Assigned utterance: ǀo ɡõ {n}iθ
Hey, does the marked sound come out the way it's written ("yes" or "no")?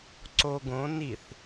yes